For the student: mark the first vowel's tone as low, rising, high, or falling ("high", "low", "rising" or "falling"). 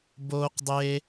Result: high